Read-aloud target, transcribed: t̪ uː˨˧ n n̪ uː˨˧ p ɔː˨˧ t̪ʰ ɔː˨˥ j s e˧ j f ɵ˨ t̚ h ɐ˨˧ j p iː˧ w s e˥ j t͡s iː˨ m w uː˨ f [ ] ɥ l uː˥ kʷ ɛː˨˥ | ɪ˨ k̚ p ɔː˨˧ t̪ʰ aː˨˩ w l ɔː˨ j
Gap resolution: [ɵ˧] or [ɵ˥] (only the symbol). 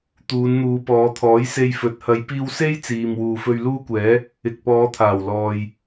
ɵ˧